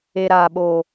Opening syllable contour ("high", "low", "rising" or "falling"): low